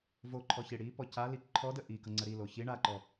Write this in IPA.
v o ǃʰ ɔ ç i ɽ i p ɔ c a l i ǃʰ ɔ d ə ʔ i k ʌ ŋ͡ǀ ə ɾ i l o ç i ɳ a ǃ ɔ

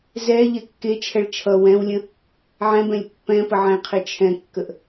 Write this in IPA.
z ɛ ʎ ɛ kː e t͡ʃʰ ɛ ɭ t͡ʃʰ ʌ w ɛ̃ w lʲ ə̃ | ʕ ɛ̃ b ɛ̃ lʲ pː ɛ̃ p ə ʕ ɛ̃ qʰ e t͡ʃʰ ɛ̃ kː ə ʔ

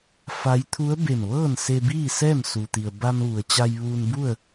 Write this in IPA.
f a˧˥ j t̪ʰ u˧˥ ə̯ b e˧˩ m ʋ ɤː˥˨ n s e˧ b iː˥˨ s ɛː˥˨ m s u˩ t̪ i˩ ə̯ b a˧ m ʋ u˩ ə̯ t͡ɕ a˧ j ʋ uː˧ n b u˥˨ ə̯

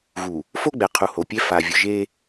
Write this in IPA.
ɣ u˨ | f o˦ ɡ͡b ɛ˨ qʰ u˨ h o˨ pʲ ɛ˦ f a˨ vʲ ʊ˨ ʒ e˦

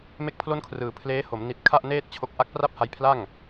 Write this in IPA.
m e˥˩ k̚ pʰ l o˥˩ n kʰ r ɯː˩˦ pʰ l eː˦˥ h o˩˦ m n i˨˩ t̚ kʰ a˥˩ ʔ n eː˥˩ t̚ t͡ɕʰ o˦˥ k̚ ʔ a˦˥ k̚ p r a˥˩ p̚ h a˧ j pʰ l a˥˩ ŋ

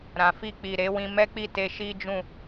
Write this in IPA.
ɾ ã˨ f i˧ k͡p i˨ ɾ e˨˦ w ĩ˧ m ɛ˦ k͡p i˦˨ t e˧ ʃ i˦ d͡ʒ ũ˦˨

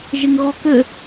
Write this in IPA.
ʒ ɪ ŋ ɣ ɔ k ɘ

